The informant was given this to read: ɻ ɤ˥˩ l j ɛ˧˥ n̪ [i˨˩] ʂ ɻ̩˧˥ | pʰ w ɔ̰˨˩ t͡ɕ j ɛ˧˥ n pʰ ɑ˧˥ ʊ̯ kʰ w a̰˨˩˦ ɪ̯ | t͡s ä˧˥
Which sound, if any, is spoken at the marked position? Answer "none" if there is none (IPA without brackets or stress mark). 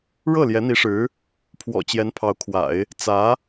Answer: i˧˥